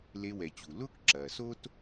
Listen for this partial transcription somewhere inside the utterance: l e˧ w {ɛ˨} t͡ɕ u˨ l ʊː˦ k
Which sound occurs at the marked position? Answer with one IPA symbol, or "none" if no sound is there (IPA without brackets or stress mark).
ɛ˨